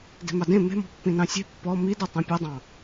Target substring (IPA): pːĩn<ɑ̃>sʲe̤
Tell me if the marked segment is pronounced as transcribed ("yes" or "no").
yes